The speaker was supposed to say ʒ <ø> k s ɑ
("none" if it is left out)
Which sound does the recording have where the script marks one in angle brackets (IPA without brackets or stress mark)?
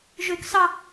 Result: ø